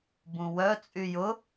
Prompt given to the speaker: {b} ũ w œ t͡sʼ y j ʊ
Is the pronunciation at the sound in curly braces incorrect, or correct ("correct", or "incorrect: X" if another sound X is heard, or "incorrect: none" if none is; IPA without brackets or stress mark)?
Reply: correct